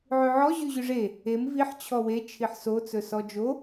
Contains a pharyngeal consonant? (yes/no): yes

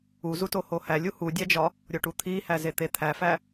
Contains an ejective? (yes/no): no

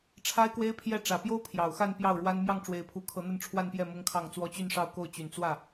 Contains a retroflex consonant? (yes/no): yes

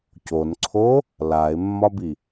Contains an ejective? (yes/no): no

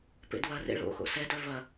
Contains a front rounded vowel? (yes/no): yes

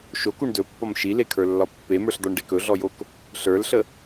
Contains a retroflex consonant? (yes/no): yes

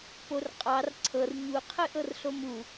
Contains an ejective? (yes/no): yes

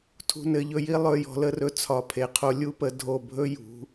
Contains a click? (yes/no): no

